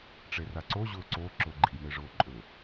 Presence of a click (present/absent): present